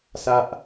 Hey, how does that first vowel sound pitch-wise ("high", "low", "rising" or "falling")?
high